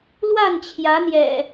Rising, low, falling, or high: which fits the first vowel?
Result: falling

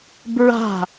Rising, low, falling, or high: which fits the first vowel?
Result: falling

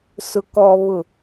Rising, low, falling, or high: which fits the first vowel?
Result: low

